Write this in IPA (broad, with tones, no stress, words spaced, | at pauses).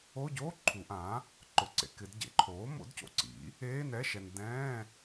o˧˥˧ɟoː˧˥˧ ǃʰu˨˩˦ʔãː˩˥ | ǃʊ˨ǀḛ˨ kɪ˨˩˦dɟḛ˩˥ǃʰoː˩˥ mo̰˩˥dco̰˨ǀḭ˩˥ | eː˧˥˧nɛ˧˥˧ʃɛ˨n dɛ̃ː˧˥˧